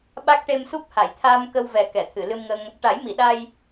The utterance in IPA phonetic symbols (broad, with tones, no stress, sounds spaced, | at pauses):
ɓ a˦˥ k̚ ʈ e˧ m s u˦˥ p̚ h a˨˩˨ j t̪ʰ aː˧ m k ə˧ w v ɛ˨˩ k ɛ˨˩˨ t̪ʰ ɨ˨˩˨ l ɨ˧ m ŋ ə˧ ŋ | ʈ a˨˩˦ j m i˨˩˨ ɗ a˧ j